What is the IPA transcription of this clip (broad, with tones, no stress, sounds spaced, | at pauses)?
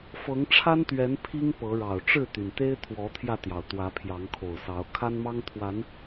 f ɤ˨˦ ŋ ʈ͡ʂʰ a˦ n t̪ ɥ ɛ˨˦ n pʰ i˦ ŋ p ɤ˨˦ ɻ ɑ˨˩ ʊ̯ ʈ͡ʂ ɻ̩˥˨ t̪ y˩ n t̪ e˦ ɪ̯ t̪ʰ w ɔ˨˦ t̪ʰ j ä˧ t̪ j ɑ˩ ʊ̯ t̪ w ä˨˦ pʰ j ɑ˨˦ ŋ kʰ o˨˩ ʊ̯ s ɑ˨˦ ʊ̯ kʰ a˦ n m ɑ˦ ŋ t̪ʰ w a˨˦ n